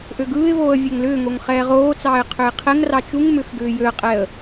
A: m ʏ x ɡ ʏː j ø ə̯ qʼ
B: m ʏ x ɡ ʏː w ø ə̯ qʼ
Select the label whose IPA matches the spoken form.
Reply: A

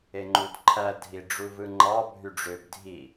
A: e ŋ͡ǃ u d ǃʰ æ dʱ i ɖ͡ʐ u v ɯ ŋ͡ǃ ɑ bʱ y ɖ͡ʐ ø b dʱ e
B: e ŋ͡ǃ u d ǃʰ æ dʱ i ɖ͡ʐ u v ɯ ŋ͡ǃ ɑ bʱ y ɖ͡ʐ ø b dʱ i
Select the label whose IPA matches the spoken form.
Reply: B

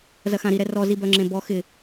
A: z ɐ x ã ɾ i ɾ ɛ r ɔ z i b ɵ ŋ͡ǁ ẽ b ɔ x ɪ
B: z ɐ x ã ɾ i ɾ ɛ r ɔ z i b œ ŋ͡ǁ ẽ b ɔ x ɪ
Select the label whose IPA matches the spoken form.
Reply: B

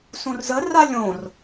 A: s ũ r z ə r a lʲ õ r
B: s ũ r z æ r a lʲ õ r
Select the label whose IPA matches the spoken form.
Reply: A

